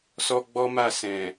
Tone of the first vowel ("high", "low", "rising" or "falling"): high